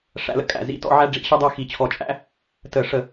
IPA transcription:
ʂæ̰˧˥lə̰˧˥kʼæ̰˧˩˧ zḭ˧˥tɔ̰˧˥ ʕæ˥ɖ͡ʐḭ˧˩˧ ɕə˥dˤæ˥xi˧˩˧t͡ɕʰɔ˧˩˧ t͡ʃʼæ̰˥ | tə˧˩˧ʂə˧˩˧

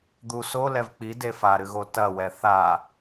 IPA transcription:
d̪u so lɛvk͡pi defaɾɨɣo tɐwɛ θa

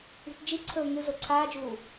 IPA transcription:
i̤td͡ʒiǀʰɵː ŋɨ zoǀʰaːd͡ʒuː

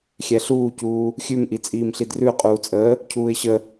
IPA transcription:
xʲɛɬuːcuː | xʲʉmʔi t͡sʼiːmɬidrʉʊ̯qʼuː t͡sʼəː | cʰuːɪ̯ɕə

